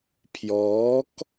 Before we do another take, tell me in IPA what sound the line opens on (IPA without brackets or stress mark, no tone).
pʰ